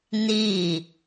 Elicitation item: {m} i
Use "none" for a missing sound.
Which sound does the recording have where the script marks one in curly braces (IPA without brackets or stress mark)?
n